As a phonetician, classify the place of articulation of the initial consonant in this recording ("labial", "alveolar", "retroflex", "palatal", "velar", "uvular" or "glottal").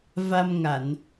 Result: labial